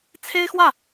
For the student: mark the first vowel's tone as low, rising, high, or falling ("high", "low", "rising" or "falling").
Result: high